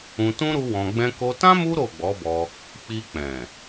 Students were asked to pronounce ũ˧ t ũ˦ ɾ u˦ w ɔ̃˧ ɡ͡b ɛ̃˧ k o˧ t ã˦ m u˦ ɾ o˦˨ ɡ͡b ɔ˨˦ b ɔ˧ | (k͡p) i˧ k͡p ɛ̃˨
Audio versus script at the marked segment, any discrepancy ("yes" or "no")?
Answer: no